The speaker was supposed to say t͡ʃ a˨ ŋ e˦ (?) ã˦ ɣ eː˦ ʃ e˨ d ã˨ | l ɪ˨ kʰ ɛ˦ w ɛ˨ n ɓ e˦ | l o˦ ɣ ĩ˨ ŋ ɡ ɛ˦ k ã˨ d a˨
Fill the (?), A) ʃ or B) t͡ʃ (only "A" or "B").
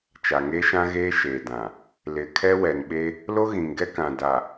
A